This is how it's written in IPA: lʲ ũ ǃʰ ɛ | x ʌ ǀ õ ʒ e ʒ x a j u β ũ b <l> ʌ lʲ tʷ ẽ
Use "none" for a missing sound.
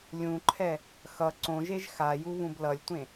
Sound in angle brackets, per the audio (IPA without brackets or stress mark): l